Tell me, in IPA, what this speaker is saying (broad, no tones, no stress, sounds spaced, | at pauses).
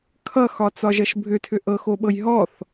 kʰ ʌ x ɒ t͡s ɒ ʒ ʌ ʃ bʱ ʏ tʰ ʏ ʔ ɤ x o ɓ ɤ j ɦ ɔ θ